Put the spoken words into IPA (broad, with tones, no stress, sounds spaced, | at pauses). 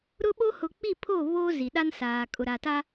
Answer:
ɾ ʊ˦ ɓ o˦ h ʊ˨ k͡p i˦˨ pʰ o˦˨ β oː˦ z i˨ ɗ a˦ n s aː˨ kʼ ʊ˨ ɾ a˨ t a˦